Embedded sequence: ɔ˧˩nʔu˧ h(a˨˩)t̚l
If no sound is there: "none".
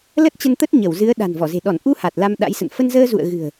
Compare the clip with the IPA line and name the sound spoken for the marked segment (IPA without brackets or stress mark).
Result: a˨˩